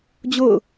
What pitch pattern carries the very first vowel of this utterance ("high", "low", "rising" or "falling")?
falling